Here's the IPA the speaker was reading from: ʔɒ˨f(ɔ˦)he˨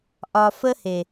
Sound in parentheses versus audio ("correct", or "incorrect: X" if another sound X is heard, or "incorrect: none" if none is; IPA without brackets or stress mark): incorrect: ə˦